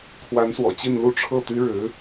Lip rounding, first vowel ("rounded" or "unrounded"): unrounded